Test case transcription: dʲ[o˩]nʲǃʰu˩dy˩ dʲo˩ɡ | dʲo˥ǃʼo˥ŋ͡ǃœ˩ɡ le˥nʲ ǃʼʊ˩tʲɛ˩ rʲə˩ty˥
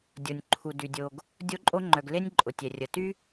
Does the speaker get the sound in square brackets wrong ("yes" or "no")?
no